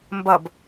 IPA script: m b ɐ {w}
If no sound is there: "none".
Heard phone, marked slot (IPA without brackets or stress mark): b